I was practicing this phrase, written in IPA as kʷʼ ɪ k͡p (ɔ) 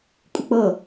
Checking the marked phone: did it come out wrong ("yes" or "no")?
yes